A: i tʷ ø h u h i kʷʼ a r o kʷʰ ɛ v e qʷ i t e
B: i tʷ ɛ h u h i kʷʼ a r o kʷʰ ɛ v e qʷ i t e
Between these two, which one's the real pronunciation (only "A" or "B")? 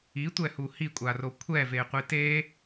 B